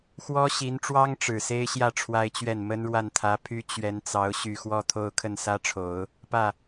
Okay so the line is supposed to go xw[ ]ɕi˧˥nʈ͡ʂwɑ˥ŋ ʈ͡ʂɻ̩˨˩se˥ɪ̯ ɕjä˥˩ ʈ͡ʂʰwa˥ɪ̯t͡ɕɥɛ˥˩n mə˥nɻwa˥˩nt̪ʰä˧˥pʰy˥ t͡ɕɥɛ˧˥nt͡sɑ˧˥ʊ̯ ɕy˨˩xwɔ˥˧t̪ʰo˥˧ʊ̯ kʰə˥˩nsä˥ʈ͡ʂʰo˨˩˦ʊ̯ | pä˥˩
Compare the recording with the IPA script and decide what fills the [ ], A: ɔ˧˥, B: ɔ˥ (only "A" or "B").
B